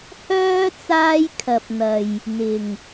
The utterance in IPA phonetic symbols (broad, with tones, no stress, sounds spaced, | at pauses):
h œː˥ t͡s aː˥ j kʰ ɐ˨ p̚ n̪ ɐ˨ j | n̪ ɪ˨˩ ŋ